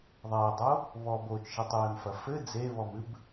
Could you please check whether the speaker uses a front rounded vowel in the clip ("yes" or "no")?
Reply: no